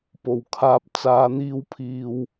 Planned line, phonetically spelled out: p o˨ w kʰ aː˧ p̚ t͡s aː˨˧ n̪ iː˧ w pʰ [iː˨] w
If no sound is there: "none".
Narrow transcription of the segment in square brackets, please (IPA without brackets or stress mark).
iː˨